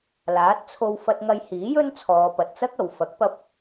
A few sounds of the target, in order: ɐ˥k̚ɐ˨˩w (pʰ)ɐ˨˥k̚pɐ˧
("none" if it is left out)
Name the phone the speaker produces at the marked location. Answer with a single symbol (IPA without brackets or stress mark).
f